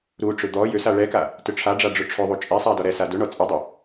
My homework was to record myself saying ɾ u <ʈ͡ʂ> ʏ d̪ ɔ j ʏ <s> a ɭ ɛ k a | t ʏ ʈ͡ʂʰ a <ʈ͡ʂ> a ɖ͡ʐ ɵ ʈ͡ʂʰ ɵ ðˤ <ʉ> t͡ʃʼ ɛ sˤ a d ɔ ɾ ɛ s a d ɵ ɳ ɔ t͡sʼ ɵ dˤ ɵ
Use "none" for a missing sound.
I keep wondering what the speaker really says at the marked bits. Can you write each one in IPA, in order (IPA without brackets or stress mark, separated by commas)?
ʈ͡ʂ, s, ɖ͡ʐ, u